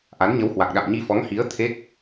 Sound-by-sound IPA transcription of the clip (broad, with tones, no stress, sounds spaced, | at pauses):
ʔ a˨˦ n ɲ ə˨˦ w h w a˨˩ k̚ ɗ a̰˧˨ m ɲ i˧ f ɔ˨˦ ŋ h i˨˦ ə̯ t̪ʰ e˦˥ k̚